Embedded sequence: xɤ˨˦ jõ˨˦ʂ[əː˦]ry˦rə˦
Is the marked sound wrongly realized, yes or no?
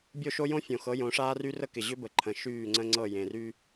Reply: yes